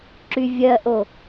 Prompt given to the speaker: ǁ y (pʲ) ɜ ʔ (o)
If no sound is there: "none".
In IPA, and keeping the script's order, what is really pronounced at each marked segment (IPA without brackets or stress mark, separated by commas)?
vʲ, o